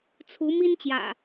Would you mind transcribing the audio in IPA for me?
t͡sʰ u˨˦ m i˦ n t͡ɕ j ä̰˨˩

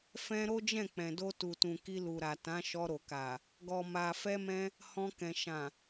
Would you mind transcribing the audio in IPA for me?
f ɛ̃˧ ɾ o˦ d͡ʒ ɛ̃˦˨ k͡p ɛ̃˨ d o˧ t u˨ t ũ˨ k i˧ l u˨ ɾ a˨ t ã˨˦ ʃ ɔ˧ ɾ o˨ k a˨ | ɡ ɔ˨ m a˨ f ɛ˧ m ɛ̃˧ | h ɔ̃˧ k ɛ̃˨ ʃ ã˨

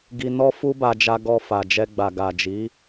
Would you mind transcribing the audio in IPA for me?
ɡ i˧ n ɔ˦ f u˦ b a˧ d͡ʒ a˧ ɡ ɔ˧ f a˨ d͡ʒ ɛ˧ ɡ͡b a˨ ɡ a˨ d͡ʒ i˨˦

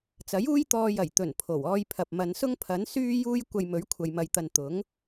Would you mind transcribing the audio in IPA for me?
t͡s ɐ˨˥ j uː˥ j t̪ ɔː˧ j ɐ˨˩ j t̪ ɵ˨˩ n pʰ o˨˩ w ɔː˧ j pʰ ɐ˨ p̚ m ɐ˨˧ n s ʊ˥ ŋ pʰ ɐ˨˥ n s yː˥ j uː˥ j kʷ ɐ˧ j m ɵ˨˥ ɥ kʷʰ ɐ˨ j m ɐ˨ j t̪ ɐ˨ n t̪ ʊ˨˥ ŋ

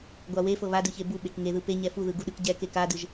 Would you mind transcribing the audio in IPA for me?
ɡʷ a w e f ɤ β a d ɯ ç e b u ɓ e k ŋ e ð ɯ p e ɲ ɛ f u ð ɯ ɡ u ɗ ɯ k ɟ ɛ k e k a d ɯ ʒ

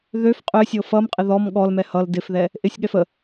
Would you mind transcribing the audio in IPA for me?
ð ø f qʼ ø sʲ ɤ f ʌ m qʼ ɪ ð ɔ m ɠ ɔ l m ɛ h ʌ l d ɪ f ð ɛ | ʔ ɪ sʲ ɠ ɛ f ə

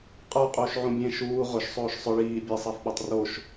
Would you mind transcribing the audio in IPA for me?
qʼ ə˞ qʼ uː ʃ ʕ ũ bʲ ẽ ʃ uː ʁ ʊ ʃ sˤ oː ʃ sˤ ʊ ɭ iː bʲ e sˤ e f ɓ o tˤ r o ʃ

